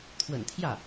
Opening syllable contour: low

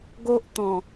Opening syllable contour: high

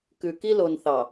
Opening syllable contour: low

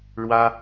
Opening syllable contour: high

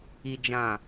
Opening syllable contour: low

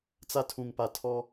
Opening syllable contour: high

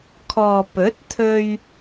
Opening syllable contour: low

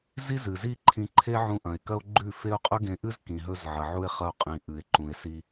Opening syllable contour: high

